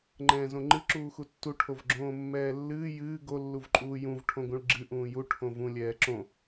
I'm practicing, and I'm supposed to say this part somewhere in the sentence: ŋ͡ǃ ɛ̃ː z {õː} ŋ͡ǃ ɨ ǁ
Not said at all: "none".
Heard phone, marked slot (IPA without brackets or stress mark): õ